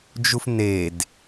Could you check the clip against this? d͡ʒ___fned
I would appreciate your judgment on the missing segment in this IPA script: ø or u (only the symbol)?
u